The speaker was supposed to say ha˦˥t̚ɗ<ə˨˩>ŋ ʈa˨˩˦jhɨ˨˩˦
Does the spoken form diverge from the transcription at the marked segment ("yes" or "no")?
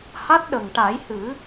no